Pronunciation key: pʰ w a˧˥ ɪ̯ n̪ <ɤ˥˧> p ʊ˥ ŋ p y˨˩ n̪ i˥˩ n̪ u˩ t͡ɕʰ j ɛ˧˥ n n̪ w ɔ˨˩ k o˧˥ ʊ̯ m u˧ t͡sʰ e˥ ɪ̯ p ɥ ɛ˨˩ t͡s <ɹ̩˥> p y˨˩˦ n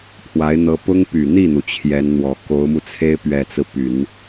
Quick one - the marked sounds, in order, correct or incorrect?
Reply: incorrect, incorrect

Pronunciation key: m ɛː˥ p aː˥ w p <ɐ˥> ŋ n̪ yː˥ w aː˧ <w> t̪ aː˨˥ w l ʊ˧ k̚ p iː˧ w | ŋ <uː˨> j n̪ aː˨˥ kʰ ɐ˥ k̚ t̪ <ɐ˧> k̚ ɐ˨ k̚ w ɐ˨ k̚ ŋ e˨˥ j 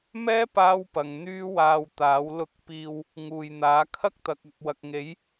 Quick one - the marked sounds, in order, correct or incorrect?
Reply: incorrect, correct, correct, incorrect

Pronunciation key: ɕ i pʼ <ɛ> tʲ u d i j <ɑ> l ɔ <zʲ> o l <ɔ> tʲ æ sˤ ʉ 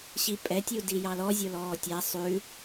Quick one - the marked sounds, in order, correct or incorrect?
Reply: correct, correct, correct, incorrect

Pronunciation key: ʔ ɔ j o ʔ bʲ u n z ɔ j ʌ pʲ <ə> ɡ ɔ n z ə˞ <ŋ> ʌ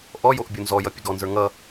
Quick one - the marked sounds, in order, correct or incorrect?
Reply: correct, correct

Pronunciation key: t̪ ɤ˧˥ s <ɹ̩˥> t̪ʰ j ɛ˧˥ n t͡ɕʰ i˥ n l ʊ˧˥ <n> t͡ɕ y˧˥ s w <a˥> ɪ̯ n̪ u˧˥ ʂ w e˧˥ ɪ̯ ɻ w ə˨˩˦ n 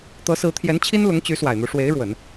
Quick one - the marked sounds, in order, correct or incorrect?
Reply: incorrect, incorrect, incorrect

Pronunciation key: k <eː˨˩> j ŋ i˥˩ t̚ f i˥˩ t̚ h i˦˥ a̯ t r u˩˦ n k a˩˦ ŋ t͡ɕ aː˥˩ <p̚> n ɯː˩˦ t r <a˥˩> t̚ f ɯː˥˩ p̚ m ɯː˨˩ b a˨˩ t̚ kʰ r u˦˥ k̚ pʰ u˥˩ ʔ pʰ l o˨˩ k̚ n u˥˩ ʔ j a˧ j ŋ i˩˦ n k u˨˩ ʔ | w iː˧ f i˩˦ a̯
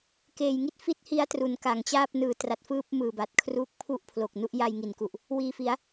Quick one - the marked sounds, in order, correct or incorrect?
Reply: correct, correct, incorrect

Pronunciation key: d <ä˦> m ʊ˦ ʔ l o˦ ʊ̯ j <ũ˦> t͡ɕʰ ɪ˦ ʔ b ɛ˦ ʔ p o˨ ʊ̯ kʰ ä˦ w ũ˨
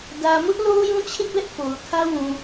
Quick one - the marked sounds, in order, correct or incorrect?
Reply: incorrect, correct

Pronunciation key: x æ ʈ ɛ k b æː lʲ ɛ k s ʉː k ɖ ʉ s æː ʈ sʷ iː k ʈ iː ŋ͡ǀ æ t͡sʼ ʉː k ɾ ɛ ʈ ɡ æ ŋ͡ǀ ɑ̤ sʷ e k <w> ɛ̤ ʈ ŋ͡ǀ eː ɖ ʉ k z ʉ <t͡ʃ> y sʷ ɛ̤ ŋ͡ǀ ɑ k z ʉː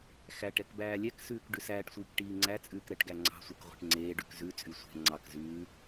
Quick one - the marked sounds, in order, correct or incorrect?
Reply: incorrect, incorrect

